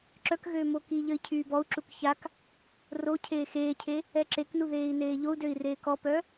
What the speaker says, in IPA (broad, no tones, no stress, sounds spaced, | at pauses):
ǁ œ k ɣ øː m o k i ʎ ə i̯ cʰ yː b ɔ u̯ ǁ u k ç a k | r o cʰ eː x eː cʰ e | ɛ ǁ e k n u ð eː i̯ n eː ʎ o u̯ d ø i̯ r eː k ɔ p œ